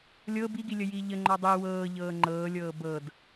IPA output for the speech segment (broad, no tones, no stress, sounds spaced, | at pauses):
lʲ ɤ b i ɡ i lʲ ə j i ʎ ə ŋ͡ǃ ɔ dˤ i w ɤː ʎ ɤː ŋ͡ǃ ɤː lʲ ɤː b ɤ d